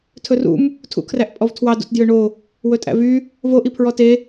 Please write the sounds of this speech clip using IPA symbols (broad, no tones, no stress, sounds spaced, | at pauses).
tʰ ɵ r ṵ m | tʰ ṵ kʰ r æ ʔ pʼ ɔ v tʰ w ɑ d ṵ t d j ø ɳ o | w ɵ tʼ æ̰ v y | v o ʔ i pʰ ɹ ɔ t e